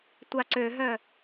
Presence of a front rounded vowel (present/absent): present